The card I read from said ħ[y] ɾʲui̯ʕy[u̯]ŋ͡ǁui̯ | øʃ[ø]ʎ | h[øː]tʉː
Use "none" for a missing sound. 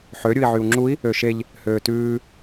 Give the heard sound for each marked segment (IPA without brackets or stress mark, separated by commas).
ø, u̯, e, øː